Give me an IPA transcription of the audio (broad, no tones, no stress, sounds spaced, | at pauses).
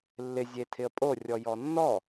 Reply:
lː ɪ zʲ e tʰ ɪ ə̯ pʼ o rʲ ɔ j ɔ nː ɔ